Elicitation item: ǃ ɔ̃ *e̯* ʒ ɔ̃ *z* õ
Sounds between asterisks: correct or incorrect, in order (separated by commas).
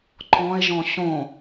correct, incorrect